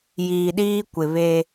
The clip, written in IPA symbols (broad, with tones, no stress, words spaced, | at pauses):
jiː˨ɗiː˦kʷɪ˨ βe˦